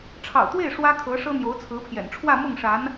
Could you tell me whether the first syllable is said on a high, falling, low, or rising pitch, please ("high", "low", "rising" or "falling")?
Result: low